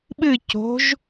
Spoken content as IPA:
ɓɨ co̤ʒ

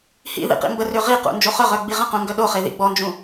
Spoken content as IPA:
hḭðḭ qḭmbərø ʁiqṵ nd͡ʒoχœʁœ ɡ͡biʁə̃qũ ŋɡœɗoχe ðḭɡ͡bɔnd͡ʒũ

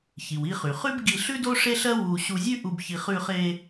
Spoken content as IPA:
çi˩wi˧χy˩χʉ˥b ɡi˧ɬʉ˥ do˥ʂe˥ɬɜ˥ wu˧ ɕu˧zʲʉ˥ʔu˧b çi˧χ ʉ˧χe˧

